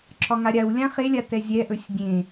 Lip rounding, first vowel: rounded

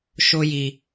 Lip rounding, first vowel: rounded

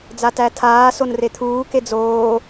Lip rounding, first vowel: unrounded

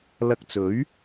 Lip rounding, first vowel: unrounded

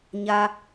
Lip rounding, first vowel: unrounded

